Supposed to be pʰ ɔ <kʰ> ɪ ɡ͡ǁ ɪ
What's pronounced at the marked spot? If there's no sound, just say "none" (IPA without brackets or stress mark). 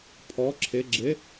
ǁʰ